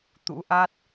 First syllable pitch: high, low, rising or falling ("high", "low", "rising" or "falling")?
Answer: rising